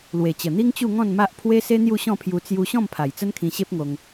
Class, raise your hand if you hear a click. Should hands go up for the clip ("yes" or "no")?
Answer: no